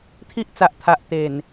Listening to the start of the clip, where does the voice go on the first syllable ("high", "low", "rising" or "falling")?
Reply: high